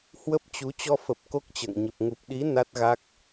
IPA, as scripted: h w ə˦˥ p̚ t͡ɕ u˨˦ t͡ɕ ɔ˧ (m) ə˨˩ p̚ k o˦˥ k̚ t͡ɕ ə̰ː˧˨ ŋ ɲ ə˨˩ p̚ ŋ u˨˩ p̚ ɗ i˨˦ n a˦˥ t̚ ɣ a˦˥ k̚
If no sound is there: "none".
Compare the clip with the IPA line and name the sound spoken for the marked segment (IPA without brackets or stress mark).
f